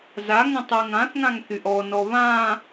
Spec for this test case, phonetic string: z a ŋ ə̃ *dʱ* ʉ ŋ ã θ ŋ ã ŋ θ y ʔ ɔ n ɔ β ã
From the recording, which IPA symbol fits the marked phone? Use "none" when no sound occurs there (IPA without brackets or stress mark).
tˤ